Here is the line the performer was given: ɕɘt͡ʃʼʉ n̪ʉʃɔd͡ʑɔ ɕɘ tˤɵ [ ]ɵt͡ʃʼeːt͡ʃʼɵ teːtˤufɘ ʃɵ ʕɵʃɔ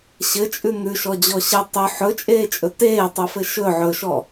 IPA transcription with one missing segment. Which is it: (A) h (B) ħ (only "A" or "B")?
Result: B